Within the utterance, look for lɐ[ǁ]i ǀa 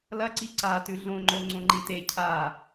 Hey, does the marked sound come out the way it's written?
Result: no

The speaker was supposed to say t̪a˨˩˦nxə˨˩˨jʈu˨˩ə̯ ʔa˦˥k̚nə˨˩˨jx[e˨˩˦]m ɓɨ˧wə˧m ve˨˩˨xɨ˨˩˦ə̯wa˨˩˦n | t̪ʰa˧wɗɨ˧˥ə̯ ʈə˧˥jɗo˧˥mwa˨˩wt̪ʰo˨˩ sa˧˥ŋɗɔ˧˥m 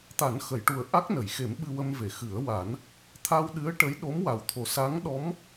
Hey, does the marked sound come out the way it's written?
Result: yes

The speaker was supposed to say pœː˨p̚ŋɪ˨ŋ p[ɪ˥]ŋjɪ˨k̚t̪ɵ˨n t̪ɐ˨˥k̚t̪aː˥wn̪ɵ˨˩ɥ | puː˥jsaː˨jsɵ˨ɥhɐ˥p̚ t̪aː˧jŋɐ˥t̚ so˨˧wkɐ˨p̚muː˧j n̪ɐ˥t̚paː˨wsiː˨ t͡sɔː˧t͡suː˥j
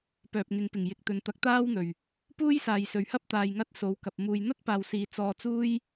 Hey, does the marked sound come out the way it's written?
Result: no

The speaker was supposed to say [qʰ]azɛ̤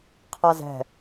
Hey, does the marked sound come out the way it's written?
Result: yes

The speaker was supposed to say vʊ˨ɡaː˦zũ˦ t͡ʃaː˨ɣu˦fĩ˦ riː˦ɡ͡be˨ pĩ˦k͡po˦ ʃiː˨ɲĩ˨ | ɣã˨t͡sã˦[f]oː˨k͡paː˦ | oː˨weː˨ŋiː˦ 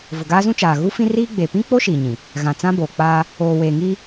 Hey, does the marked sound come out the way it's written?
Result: no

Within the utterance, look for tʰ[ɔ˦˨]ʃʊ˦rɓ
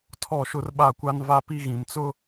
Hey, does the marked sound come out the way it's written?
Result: yes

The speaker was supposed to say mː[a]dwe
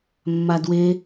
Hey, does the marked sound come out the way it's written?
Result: yes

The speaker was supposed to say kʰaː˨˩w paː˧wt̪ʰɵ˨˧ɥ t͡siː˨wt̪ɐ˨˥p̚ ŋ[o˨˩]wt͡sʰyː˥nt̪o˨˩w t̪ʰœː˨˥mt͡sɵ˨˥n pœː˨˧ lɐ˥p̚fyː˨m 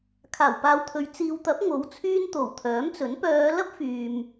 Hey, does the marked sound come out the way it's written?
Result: no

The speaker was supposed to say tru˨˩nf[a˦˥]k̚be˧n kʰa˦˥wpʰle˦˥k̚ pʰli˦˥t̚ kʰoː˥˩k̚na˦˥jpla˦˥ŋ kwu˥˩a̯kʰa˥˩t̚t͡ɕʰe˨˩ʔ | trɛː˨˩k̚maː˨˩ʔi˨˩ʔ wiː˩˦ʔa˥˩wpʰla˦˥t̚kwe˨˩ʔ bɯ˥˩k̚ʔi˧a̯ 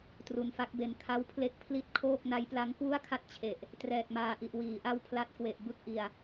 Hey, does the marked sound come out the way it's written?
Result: yes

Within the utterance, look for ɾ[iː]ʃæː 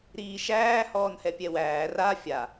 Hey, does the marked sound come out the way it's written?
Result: yes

